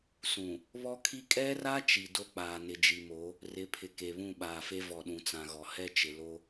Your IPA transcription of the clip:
sũ˨ | βɔ˦kʰi˦ kʼɛ˦ra˦ t͡ʃi˨do˦k͡paː˨ nɪ˨d͡ʒi˨mo˨˦ | rɪ˨˦pʰɪ˨ ke˨βũ˦˨ɓaː˨fe˦ vɔ˨ɗũ˨t͡sã˨ɣɔ˨ hɛ˦t͡ʃɪ˨ lo˦

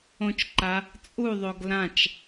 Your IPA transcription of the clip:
õt͡ʃǃa | t͡sʼuðˤoɡ lãt͡ʃ

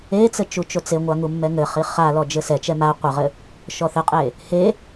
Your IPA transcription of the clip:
et͡sɘ t͡ʃut͡ʃot͡seŋʷa ŋumːɛŋɘχi χalɔ d͡ʒɘsɛt͡ʃɛ ma qʷɘʁɘ | ʃɔθɘqʼe | he

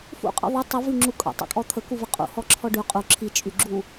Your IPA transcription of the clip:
fṵqʼə̰ ðˤy tˤuvyŋ͡ǁu kʼə̰tˤḭkʼɔ t̪ʰəkuvə qʼṵhɔǁʰɔ ɖy qʼu ǁʰit͡ʃʼyɡ͡ǁu

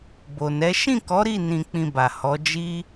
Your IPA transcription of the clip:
bo˨nɛ˨˦ ʃĩ˦˨kɔ˨˦ɾi˦˨ nĩ˧k͡pĩ˧ba˨ hɔ˨˦d͡ʒi˦

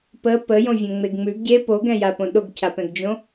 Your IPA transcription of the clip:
pə pəjõvʲõŋ͡meɡ ŋ͡mʉɡ ɟe poɡɛ̃japõ ɗoɡcʰapɛ̃ɡd͡ʒõ

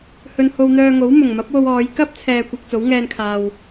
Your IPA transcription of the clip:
hɵ˧n ho˧wn̪œː˧ŋo˨˥w mʊ˨˩ŋmɐ˨˥p̚wo˧wɔː˨˧j kɐ˥p̚t͡sʰɛː˨kʷɐ˨k̚ t͡so˨˥wŋɛː˧nkʰaː˨w

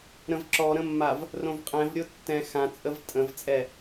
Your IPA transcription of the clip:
ɾə̃vǁɔɾə̃mːav | rõvqʼɛ̃v ɾʲotːɛ̃ xãt͡sʼəv tʼə̃vt͡sʼɛ

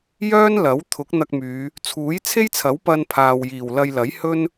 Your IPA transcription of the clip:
jœː˥nlɐ˨˥wt̪ʰʊ˨˥k̚ n̪ɐ˧k̚myː˨˧ | t͡sʰuː˨˥jt͡sʰe˥jt͡sʰɐ˨˥w pɐ˧npʰaː˨wjiː˨˩w lɐ˧jlɐ˨˥j hɵ˥n

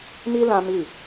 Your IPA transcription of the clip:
mi˦ lã˦mi˦˨

